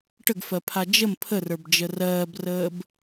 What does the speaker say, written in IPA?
ʈəɡfɜpʰa d͡ʒəm pʰərə˞bd͡ʒə rɜːbrəːb

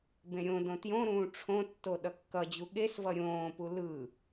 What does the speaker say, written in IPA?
bẽɾʲõdõ tjõɾũː ʈ͡ʂʰõtːo ɗʌkːʌd͡ʑu ɠesvʌ ɾʲõːpu lɯ

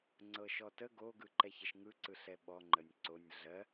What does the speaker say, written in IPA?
ŋ͡ǀɤʃɔtə ɡo ɡɯǃɛçəʃŋɯ ǀɯɬɛɓɔ ŋ͡ǃənʲǀonʲ ɮɜ

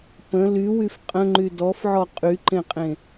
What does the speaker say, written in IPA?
pə̃ lywyf qʼə̃ŋ͡ǃy dɔfʕɔ qʼyǃẽqʼẽ

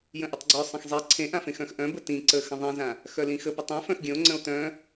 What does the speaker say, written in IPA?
jə̃ʔətˤɡ͡ǀœ sˤə̃xzˤe ǀʰẽʔãfẽxœ̃x ʔœ̃bə tĩ ǀə xə̃ðˤĩzã | xœlĩxə pətˤẽ fœ̃xɡʲə̃o̯ŋ͡ǀə̃o̯ tœ̃

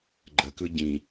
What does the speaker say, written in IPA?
ɡ͡ǃəkɯ ɟĩ

